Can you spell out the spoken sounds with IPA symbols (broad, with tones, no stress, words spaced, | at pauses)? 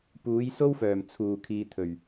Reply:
puː˨˥jso˥wfœː˨˩m t͡sʰuː˨˩kʰiː˨t̪ʰɵ˨˩ɥ